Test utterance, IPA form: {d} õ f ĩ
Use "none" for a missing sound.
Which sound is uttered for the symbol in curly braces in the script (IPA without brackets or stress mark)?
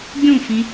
ɡʲ